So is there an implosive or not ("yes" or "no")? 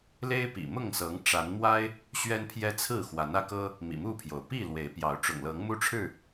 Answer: no